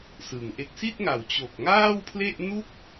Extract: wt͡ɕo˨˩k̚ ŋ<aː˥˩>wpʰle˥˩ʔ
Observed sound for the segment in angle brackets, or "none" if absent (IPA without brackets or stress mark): aː˥˩